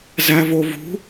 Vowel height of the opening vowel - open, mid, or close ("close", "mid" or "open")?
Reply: open